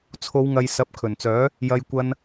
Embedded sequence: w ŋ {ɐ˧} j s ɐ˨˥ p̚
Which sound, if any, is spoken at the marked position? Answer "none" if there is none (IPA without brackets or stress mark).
ɐ˨